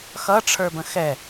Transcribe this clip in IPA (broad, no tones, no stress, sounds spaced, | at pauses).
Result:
x ʌ ʈ͡ʂʰ ə˞ b ə̃ x ɛ